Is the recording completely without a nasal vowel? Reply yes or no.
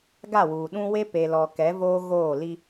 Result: no